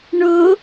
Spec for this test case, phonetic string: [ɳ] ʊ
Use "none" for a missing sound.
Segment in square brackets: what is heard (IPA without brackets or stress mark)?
ɳ